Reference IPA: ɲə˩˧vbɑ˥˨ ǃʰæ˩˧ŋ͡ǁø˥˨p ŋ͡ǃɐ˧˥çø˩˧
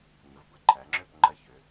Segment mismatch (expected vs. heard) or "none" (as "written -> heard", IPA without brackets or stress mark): ɑ˥˨ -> ə˥˨